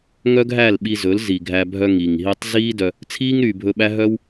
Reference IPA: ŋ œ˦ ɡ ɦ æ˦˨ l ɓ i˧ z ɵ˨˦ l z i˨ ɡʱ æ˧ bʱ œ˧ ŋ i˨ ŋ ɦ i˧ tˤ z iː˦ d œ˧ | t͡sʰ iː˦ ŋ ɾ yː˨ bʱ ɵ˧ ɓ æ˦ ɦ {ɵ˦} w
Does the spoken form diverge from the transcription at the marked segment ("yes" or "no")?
yes